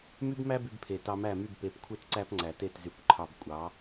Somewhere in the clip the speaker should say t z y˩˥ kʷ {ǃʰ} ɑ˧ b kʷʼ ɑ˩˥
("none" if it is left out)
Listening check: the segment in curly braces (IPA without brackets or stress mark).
ǃʰ